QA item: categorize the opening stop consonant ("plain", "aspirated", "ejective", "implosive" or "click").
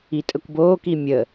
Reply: ejective